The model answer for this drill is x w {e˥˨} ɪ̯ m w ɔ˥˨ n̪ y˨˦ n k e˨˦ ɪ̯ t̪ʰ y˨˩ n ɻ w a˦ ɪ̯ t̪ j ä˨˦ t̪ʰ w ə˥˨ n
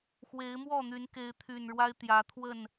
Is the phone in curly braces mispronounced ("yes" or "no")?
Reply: yes